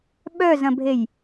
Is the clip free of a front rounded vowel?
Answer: no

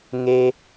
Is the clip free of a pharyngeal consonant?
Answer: yes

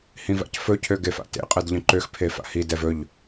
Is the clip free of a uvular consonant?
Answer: no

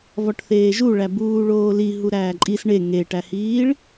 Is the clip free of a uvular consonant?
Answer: yes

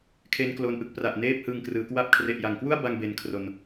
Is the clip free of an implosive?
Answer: yes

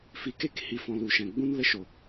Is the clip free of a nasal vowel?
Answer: no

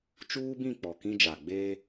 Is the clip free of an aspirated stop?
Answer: yes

